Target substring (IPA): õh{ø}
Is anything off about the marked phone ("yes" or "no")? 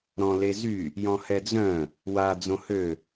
no